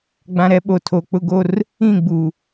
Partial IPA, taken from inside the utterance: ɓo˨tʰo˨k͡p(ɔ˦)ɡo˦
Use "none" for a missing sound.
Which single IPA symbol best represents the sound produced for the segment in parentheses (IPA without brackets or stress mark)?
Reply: ʊ˦